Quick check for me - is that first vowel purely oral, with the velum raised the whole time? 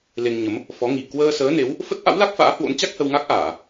yes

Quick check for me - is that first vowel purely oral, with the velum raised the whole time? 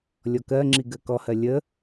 yes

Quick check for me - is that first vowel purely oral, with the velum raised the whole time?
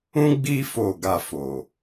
no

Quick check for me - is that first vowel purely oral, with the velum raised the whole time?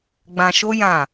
no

